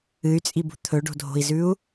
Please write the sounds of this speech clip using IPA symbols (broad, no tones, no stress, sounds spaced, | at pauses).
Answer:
ɨ y̯ t͡sʼ i b ṳ t̪ʰ ɵ ɖ o̤ dʱ o̤ i̯ z ʉ u̯